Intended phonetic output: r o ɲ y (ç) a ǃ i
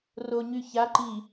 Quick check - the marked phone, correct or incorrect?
correct